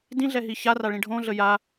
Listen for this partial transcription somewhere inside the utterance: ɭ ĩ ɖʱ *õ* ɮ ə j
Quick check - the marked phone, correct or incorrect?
correct